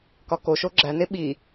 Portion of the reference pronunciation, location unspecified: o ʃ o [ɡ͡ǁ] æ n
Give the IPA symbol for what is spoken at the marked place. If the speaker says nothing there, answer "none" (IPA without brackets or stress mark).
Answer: ɡ͡ǁ